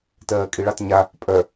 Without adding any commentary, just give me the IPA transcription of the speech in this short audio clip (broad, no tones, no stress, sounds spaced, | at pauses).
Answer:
t ɜː kʼ i ɭ ɑ t ɲ a | pʼ œ